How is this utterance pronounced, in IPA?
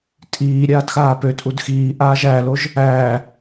tʼ iː ɾʲ aː d x aː p ø tʼ u d x iː ʔ aː ʒ æ l o ʒ | æː

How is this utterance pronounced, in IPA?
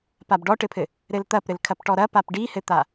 p a b ɖ ɔ ʈ ɘ pʰ ɘ | ɾ ɘ l t̪ ɐ p ɾ ɘ l kʰ ɐ p ʈ ɔ ɾ ɐ p a p ɖ i h ɘ t̪ a

